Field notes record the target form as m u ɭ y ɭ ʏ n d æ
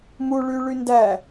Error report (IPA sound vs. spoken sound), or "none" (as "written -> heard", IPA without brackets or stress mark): ʏ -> y